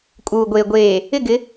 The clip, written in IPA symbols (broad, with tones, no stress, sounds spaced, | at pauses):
kʼ uː˨ ɡʷ eː˨ ɡʷ eː˨ | ɪ˦˨ ɡ ɪ˨˦